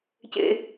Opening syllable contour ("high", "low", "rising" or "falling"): low